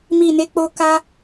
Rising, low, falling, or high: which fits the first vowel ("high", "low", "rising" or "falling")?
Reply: low